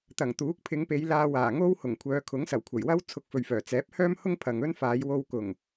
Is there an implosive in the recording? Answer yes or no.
no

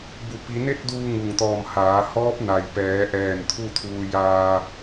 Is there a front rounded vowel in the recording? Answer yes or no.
no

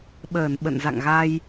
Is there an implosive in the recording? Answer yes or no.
yes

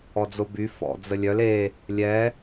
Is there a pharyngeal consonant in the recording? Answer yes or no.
no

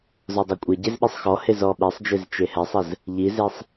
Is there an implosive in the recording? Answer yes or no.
yes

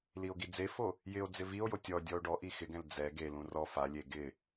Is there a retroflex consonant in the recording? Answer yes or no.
yes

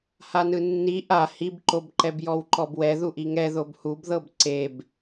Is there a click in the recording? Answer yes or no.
yes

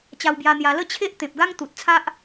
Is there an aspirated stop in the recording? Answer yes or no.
yes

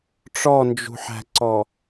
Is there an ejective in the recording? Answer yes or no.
no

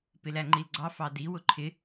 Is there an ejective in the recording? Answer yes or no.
no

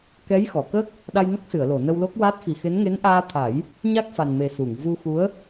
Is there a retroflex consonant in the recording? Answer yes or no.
no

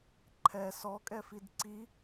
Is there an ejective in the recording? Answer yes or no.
yes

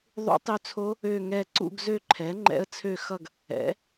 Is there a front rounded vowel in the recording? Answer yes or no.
yes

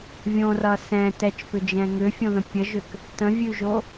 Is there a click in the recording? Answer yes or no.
no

